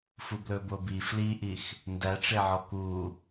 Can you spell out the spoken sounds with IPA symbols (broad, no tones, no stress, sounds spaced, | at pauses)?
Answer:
f u b l ɵ b o b i f l i ʔ i x | n d æ ʈ͡ʂ e ʕ ɔ k u